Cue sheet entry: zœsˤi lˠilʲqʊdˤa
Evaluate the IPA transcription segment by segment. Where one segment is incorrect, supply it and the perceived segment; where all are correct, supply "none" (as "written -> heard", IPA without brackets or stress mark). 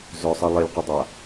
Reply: none